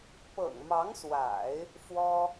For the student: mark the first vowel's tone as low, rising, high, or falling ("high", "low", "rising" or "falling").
low